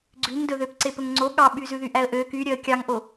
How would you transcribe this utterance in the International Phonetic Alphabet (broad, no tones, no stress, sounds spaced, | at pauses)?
ɡ͡ǀ ʉ ŋ d ɵ ð ø p ǀ e p ɵ ŋ ŋ͡ǀ o ɠ ɑ ɓ y z ʉ ð y ʔ æ ə̯ ʔ ø k y ɾʲ œ ə̯ kʲ ɑ ŋ ʔ o